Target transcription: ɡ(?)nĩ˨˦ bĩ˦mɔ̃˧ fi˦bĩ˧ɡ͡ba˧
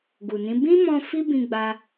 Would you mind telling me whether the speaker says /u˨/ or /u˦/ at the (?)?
u˨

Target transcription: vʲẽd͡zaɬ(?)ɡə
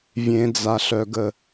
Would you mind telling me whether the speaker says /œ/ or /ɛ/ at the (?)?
œ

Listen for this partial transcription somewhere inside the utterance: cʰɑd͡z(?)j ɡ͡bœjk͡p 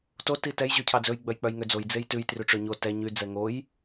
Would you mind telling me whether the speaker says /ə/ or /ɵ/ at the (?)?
ɵ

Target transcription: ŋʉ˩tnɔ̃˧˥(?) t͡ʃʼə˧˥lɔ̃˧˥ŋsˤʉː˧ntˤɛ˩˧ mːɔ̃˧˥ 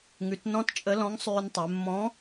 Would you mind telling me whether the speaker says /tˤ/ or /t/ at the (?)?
t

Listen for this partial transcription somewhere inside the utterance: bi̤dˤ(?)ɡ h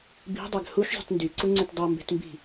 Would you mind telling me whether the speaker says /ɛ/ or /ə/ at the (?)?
ɛ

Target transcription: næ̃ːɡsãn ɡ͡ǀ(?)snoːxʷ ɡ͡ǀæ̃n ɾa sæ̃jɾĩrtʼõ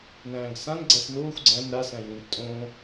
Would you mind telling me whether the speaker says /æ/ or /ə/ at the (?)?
æ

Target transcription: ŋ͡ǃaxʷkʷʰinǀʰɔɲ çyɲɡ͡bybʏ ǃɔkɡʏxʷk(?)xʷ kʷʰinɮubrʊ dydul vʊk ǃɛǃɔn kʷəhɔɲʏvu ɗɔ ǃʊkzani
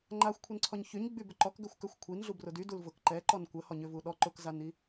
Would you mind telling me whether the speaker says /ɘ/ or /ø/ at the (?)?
ø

